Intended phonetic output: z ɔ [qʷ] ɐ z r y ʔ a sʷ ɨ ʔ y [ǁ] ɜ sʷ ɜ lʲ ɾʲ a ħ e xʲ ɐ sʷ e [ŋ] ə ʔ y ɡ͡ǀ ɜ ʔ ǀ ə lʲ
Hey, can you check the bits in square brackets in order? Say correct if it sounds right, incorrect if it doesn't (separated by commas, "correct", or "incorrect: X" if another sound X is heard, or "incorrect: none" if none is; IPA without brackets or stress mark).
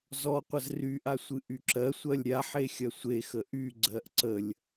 correct, correct, incorrect: x